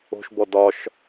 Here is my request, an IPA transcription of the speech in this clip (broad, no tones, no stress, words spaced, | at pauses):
o̤ʃbɔ dɒʃ